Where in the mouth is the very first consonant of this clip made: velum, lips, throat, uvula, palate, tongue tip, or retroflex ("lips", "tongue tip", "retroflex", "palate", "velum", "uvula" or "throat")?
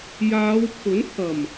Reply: palate